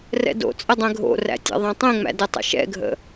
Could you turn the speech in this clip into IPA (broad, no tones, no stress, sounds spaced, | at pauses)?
r ɛ̰ d o̰ t͡sʼ ə dˤ ɛ̃ ɡʱ o̰ r æ̰ tʲ æ̰ ðˤ ã tˤ ẽ ŋ͡m æ̰ d ə tˤ ə̰ ʃ ɛ̰ ɡʱ ə̰